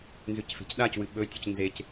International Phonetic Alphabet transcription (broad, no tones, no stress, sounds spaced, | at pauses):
n z ʉ c f e̤ c ɗ a c w ɨ ɓ ɵ tʲ u c n z e c